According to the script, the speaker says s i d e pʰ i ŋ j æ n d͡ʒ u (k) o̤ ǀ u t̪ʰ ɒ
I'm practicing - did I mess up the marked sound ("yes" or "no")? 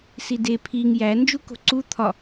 no